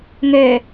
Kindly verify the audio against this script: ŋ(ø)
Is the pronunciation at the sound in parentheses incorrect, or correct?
correct